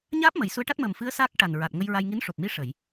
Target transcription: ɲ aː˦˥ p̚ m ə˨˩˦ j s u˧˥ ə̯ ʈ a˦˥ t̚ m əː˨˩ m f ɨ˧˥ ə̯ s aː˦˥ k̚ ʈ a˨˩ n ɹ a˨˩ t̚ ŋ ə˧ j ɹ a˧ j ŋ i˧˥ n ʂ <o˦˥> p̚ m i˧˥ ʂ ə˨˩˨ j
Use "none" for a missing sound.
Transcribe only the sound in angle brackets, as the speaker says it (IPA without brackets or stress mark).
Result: o˨˩